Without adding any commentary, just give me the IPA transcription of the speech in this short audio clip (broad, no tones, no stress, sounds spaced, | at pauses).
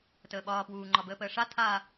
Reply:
t əː ɓ ɒː p w uː ŋ͡ǃ ɒ b əː p əː ʂ a tʰ a